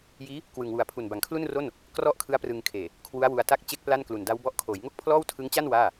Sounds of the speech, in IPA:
j iː˦˥ | k w ɯ˨˩ ŋ w u˨˩ a̯ pʰ u˨˩ n b a˩˦ ŋ kʰ l u˥˩ n r o˥˩ n | k r ɔ˥˩ ʔ kʰ ɯ˦˥ a̯ p r ɯ˧ ŋ kʰ eː˨˩ | kʰ w u˦˥ a̯ w u˧ a̯ t a˥˩ k̚ t͡ɕ e˥˩ k̚ p l a˥˩ n k l u˨˩ n d a˦˥ w b ɔ˦˥ ʔ kʰ oː˩˦ j ŋ o˥˩ k̚ pʰ l ɔː˥˩ w tʰ ɯ˦˥ ŋ t͡ɕ a˥˩ n w aː˥˩

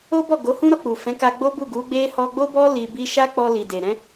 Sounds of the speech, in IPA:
o˦ b ɔ˦˨ ɡ o˨˦ h ũ˦ ɾ ɔ˧ k͡p u˨ f ɛ̃˨˦ k a˧ ɡ͡b o˦ b u˦˨ ɡ u˨˦ ɡ͡b e˦ h ɔ˧ ɡ͡b o˦ b ɔ˦ l i˧ b i˦ ʃ a˦ k͡p ɔ˧ l i˨ d e˨ ɾ ɛ̃˨˦

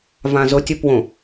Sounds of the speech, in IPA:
v ã z ʊ tʲ ʊ p w õ

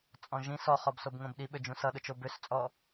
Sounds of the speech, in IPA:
t͡sʼ ɔ̃ ʒ ĩ s ɔ χ ɔ b s o b ŋ õ b ɗ i ɓ ø d͡ʒ ũ s ʌ ɗ ʊ t͡ʃ o b ø s t͡sʼ ɔ

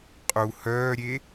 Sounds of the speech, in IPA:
qʼ u h œː ɾʲ e

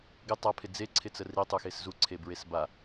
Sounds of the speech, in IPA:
ɡ ɪ tˤ a pʰ ɪ d͡z e ǀʰ ɪ t͡s ə r i tˤ u x e s z u ǀʰ e b ɹ e s b a

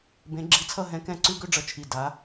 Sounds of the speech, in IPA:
b ẽ˧˥ ɡ͡ǁ i˧˥ t͡sʰ ʌ˥˧ ɦ ɛ̃˧˥ k ɛ̃˥˩ ǀ ʉ˥˧ ɡ ø˥˧ ɖ͡ʐ ʌ˧˩ t͡ʃʰ i˧˩ d a˧˥

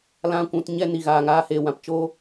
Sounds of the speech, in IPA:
l ã˦ kʷ ũ˧ t ɲ ɛ˦ n i˨ ɣ aː˨ ŋ aː˧ h eː˨ w ã˨ p t͡ʃ o˦

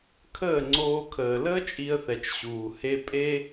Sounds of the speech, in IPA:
kʰ əː˦˨ ŋ͡ǀ oː˧ kʰ əː˨ l əː˦ t͡ʃʼ i˧ ə̯ θ ɛ˨ t͡ʃ ɕ uː˨ h e˧ pʼ e˦

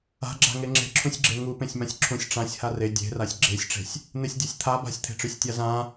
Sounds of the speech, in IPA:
a̤ ɡ͡ǁ a̤ ŋ e ŋ͡ǁ e̤ ǁʰ ũ sʲ ɡ͡ǁ e ŋ u p ẽ sʲ m ã sʲ ǁʰ ũ sʲ ʈ͡ʂ ã sʲ h a r e dʲ e̤ r a sʲ ɡ͡ǁ e sʲ ʈ͡ʂ e̤ sʲ | n̪ e sʲ dʲ e sʲ t̪ʰ a b a̤ sʲ t̪ʰ e̤ ʈ͡ʂ ø sʲ tʲ a z ã

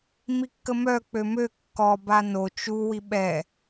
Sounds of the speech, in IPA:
m i kː ə m œ k͡p ø m ø kː ɔ b a n o t͡ʃ u w i ɓ ɛ

